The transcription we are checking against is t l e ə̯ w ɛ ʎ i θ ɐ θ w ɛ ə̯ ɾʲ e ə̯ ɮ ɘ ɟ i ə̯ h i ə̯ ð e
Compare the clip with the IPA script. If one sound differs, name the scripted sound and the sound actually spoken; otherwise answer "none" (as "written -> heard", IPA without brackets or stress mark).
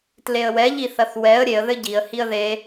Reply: ɮ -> ð